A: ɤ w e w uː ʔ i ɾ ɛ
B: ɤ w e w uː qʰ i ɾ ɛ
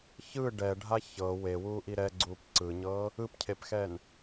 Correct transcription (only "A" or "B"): A